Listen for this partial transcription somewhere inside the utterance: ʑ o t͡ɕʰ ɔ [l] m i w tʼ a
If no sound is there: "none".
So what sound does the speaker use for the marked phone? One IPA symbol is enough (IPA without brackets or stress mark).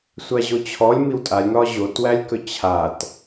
lʲ